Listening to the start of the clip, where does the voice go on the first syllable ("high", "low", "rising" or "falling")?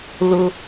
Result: high